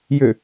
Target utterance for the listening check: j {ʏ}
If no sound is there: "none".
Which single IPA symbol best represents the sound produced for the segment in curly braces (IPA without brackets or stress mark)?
ʏ